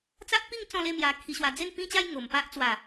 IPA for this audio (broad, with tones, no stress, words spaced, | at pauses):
t͡sa˦ʔpi˥˧ŋ t͡sɔ̃˥˧le˥˧mja˧ kʰi˧ɕwa˧ d͡ze˥˧npĩ˥˧t͡ɕa˥˧j ŋo˨˩mpa˦ʔ t͡swa˨˩